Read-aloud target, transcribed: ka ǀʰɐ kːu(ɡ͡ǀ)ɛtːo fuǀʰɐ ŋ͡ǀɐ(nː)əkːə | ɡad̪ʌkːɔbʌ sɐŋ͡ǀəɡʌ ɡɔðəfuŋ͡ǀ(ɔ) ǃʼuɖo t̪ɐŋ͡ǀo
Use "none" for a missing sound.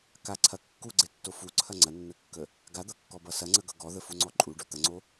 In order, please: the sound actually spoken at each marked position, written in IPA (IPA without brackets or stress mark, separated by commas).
ɡ͡ǀ, nː, ɔ